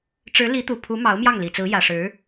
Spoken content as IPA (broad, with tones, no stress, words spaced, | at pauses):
ʈ͡ʂɻ̩˧˥li˧˥t̪u˨˩pʰu˧˥ mɑ˧˥ʊ̯mjɑ˥˩ŋli˨˩t͡sɹ̩˧˥ jä˨˩ʂɻ̩˧˥